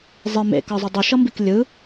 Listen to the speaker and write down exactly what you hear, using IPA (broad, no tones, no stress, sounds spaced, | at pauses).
zˤ i m ḛ k ʌ zˤ ɯ dˤ u ʃ ʌ m b i k lʲ ɯ